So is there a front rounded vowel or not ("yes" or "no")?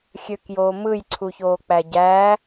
yes